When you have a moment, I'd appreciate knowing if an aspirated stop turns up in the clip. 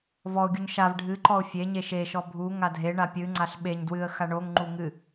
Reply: no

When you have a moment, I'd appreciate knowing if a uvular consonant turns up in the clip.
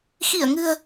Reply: no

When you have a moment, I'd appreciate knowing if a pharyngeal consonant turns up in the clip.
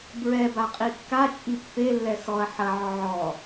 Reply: yes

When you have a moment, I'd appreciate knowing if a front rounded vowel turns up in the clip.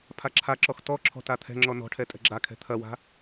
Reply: no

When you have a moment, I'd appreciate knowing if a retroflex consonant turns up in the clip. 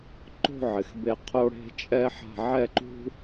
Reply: yes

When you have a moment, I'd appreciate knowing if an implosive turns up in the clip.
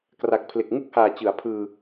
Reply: no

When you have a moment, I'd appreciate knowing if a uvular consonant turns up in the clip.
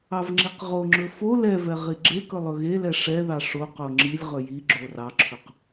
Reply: yes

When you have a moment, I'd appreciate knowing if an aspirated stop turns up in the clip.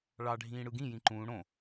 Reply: no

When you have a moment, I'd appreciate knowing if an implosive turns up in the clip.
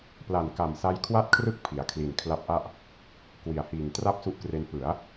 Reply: no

